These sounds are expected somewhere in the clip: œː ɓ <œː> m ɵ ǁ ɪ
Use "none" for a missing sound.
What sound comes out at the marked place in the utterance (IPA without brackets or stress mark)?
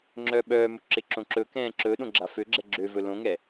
œː